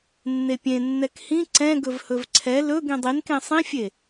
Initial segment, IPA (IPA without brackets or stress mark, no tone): nː